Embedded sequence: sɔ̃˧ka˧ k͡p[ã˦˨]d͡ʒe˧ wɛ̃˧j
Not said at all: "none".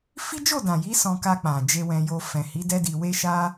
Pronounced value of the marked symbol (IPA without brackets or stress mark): ã˨